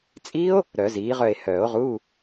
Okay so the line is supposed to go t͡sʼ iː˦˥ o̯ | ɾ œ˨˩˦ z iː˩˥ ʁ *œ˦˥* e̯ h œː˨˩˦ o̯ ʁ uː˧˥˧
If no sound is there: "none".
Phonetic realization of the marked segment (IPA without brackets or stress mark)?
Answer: œ˦˨